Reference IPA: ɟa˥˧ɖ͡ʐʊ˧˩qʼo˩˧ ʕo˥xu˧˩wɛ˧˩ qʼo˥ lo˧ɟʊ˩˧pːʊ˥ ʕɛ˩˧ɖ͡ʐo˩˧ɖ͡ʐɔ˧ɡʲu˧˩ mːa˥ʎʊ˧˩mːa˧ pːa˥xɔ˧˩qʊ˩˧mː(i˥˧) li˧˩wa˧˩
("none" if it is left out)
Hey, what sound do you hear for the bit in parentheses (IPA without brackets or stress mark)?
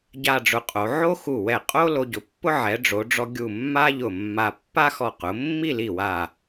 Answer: i˥˧